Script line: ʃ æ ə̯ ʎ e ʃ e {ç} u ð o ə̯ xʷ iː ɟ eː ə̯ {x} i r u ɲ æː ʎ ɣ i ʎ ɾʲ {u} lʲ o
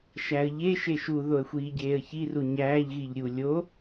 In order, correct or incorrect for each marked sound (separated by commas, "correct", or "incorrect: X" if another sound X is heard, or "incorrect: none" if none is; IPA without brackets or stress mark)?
incorrect: ʃ, incorrect: ç, correct